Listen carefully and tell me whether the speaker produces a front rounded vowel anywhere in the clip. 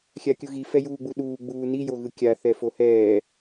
no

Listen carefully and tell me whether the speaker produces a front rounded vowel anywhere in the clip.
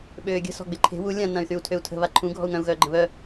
yes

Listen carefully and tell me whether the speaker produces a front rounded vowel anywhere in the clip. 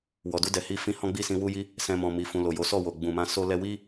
no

